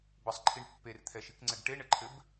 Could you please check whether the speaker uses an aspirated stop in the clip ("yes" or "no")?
yes